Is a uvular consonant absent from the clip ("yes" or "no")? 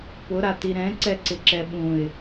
yes